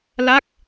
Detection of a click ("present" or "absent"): absent